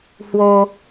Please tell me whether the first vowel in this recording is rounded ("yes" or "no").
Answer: yes